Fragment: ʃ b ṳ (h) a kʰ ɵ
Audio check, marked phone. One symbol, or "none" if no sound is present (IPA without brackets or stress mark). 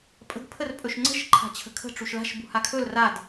h